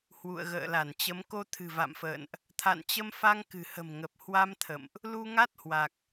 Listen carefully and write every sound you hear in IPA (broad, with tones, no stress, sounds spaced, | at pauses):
h w ṵ˧˨ ə̯ ɣ ə̰ː˧˨ l a˧˩ n t͡ɕ ə˨˦ m k o˧ t̪ʰ ɨ̤˨˩ v a̰˧˨ m f ə̰ː˧˨ n ʔ | t̪ʰ a̰˧˨ n t͡ɕ ə˧ m f a˧ ŋ k ɨ̤˨˩ h ə̤˨˩ m ŋ ə˨˩ p̚ h w a˧ m t̪ʰ ə̰˧˨ m ʔ | l u˧ ŋ a˦˥ t̚ h w a˨˩ k̚